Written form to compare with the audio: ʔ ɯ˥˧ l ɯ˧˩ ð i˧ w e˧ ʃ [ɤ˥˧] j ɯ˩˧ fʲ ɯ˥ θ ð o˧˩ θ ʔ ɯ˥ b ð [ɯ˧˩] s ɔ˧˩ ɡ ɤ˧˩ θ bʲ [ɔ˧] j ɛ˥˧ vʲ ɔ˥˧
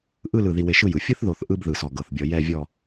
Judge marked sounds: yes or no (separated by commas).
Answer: no, yes, yes